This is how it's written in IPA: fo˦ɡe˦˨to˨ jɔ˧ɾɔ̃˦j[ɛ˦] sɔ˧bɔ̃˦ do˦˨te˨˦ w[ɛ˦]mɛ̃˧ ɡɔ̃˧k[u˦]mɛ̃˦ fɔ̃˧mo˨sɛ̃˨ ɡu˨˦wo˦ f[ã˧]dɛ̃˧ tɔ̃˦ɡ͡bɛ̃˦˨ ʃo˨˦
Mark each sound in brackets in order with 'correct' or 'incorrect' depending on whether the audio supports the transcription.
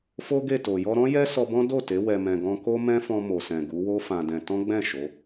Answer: correct, incorrect: ɛ˧, incorrect: o˦, correct

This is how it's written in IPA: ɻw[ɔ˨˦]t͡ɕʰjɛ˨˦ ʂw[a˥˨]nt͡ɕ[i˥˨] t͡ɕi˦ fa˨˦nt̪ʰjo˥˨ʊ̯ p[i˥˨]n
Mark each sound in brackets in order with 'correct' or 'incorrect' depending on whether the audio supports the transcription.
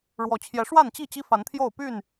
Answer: incorrect: ɔ˨˩, correct, correct, incorrect: y˥˨

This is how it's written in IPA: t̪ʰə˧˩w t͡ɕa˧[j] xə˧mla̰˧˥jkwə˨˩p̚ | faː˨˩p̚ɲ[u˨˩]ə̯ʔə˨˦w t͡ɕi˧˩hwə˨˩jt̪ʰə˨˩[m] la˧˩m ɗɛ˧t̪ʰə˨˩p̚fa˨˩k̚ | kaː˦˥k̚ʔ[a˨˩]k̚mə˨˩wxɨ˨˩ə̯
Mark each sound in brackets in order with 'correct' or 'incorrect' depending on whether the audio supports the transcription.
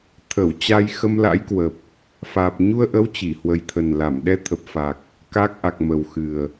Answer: correct, incorrect: u˧, incorrect: n, correct

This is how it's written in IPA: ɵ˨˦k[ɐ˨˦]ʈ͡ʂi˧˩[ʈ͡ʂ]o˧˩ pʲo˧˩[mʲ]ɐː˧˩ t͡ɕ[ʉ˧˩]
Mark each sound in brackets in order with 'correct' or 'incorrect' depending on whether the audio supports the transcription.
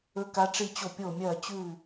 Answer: incorrect: a˨˦, incorrect: t͡ɕ, correct, correct

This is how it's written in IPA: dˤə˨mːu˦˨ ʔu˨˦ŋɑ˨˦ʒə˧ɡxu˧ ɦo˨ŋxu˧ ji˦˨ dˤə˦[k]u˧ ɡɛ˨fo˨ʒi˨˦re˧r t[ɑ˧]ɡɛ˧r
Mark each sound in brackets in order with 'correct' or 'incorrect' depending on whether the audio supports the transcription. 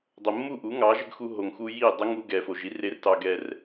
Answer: incorrect: ŋ, correct

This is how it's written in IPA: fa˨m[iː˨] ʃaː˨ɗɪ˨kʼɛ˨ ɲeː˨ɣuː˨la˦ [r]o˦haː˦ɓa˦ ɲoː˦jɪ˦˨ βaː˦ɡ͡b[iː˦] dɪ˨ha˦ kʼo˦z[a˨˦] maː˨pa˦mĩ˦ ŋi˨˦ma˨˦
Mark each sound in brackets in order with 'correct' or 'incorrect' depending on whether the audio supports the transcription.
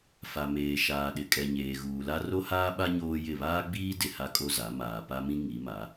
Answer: incorrect: eː˨, correct, correct, correct

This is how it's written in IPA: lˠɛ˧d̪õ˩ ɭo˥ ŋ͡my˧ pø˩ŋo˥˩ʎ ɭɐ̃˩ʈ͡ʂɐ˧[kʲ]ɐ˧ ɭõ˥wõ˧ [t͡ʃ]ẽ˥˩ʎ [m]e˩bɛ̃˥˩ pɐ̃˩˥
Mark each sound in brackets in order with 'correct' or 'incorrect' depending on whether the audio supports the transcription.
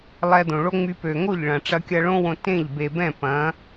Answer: correct, incorrect: t, incorrect: b

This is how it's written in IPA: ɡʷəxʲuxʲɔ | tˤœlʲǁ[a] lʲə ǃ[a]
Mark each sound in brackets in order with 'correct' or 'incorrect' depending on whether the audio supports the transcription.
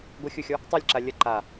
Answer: correct, correct

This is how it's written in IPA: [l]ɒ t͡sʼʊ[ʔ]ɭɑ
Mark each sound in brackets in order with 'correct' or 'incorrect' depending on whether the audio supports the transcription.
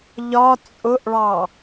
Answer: incorrect: ʎ, correct

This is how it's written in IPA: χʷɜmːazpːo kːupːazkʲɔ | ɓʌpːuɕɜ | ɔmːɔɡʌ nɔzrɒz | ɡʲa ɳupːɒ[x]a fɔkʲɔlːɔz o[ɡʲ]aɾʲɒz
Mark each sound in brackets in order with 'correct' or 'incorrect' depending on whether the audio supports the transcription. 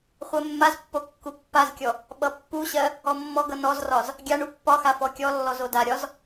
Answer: correct, incorrect: d

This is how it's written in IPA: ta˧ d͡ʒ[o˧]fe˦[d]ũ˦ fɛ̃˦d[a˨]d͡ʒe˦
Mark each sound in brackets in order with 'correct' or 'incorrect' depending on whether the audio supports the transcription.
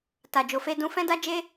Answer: correct, correct, incorrect: a˦

